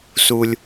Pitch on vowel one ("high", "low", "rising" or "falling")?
high